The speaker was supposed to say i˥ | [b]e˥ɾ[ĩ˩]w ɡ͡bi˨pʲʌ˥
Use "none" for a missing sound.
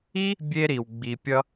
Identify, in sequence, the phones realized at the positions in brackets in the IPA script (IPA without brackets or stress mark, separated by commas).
bʲ, i˩